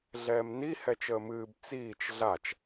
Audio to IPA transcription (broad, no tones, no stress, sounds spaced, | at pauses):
ɮ ɛː m n i h ɛ t͡ʃ əː m ɨː b t͡s iː t͡ʃ ɮ a t͡ʃ